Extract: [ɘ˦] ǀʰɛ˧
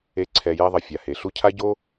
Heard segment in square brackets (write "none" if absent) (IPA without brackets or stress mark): e˦